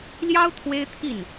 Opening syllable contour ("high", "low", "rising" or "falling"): high